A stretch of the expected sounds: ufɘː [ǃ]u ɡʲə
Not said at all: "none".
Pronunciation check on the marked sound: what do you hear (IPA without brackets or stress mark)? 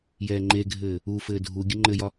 dʱ